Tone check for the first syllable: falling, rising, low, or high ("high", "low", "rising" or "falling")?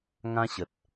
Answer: high